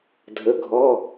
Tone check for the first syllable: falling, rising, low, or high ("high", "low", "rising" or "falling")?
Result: rising